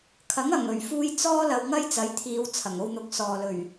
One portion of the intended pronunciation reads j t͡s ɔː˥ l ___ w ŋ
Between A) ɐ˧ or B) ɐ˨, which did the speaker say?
A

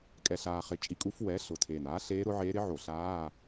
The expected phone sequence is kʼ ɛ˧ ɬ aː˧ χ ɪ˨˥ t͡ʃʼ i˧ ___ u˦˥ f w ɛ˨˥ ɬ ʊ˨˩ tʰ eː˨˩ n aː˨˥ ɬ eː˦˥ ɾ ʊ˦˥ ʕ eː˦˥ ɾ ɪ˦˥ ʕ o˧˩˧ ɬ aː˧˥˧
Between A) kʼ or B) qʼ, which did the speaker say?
A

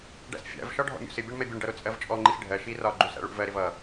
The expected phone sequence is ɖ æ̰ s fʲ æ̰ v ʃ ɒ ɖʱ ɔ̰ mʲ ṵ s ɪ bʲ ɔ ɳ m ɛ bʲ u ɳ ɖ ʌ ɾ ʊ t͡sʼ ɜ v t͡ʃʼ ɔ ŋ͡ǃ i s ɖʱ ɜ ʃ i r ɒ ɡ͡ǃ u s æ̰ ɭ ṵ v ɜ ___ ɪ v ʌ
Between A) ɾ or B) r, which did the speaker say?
A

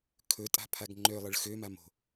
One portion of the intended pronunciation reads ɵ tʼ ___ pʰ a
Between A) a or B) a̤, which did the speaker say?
B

